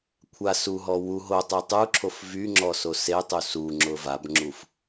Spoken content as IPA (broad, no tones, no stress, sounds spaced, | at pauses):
kʷʰ a s u ɦ ɔ w u ɦ o tˤ i tˤ u ǁʰ o f v y ŋ͡ǁ ɔ s o s e tˤ u s u ŋ͡ǁ ʊ v a b ŋ͡ǁ u f